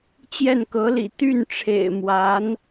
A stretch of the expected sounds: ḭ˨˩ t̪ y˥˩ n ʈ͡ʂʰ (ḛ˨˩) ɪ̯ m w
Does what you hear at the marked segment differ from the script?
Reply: no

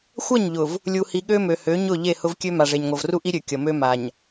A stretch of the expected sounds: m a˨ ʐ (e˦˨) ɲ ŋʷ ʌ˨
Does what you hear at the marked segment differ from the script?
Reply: yes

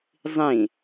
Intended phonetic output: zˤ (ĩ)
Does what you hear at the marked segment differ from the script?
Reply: no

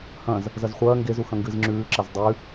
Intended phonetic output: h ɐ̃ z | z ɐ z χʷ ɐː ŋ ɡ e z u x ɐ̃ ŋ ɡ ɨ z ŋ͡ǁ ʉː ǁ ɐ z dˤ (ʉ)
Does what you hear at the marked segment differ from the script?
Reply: no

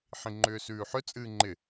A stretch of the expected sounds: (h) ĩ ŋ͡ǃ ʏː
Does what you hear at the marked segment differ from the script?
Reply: yes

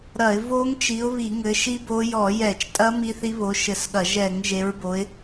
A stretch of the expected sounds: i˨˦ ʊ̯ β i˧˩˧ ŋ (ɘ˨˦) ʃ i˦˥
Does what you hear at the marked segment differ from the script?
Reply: no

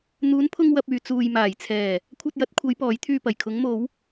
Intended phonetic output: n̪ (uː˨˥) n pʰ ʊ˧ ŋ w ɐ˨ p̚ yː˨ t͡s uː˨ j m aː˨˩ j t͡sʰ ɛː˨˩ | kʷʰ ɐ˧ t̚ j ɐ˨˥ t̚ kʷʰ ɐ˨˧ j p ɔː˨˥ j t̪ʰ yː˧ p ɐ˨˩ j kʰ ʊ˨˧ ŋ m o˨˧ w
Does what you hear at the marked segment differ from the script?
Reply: yes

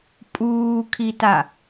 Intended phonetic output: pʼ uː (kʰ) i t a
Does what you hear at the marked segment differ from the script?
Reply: no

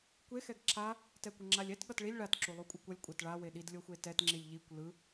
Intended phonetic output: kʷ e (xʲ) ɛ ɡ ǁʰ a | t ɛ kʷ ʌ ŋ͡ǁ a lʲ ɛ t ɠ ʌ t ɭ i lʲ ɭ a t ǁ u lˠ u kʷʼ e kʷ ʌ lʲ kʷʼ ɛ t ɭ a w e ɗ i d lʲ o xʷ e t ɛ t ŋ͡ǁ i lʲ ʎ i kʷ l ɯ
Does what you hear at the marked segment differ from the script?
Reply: yes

